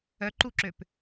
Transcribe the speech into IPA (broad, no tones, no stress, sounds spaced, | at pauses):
œ ǃ u ǁ ø p